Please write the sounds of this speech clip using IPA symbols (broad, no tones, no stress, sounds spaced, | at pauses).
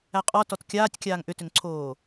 æ qʼ ɔ t ɔ t kʲ aː tʲ kʲ aː ŋ ʔ ʏ t ʏ ŋ ǀʰ oː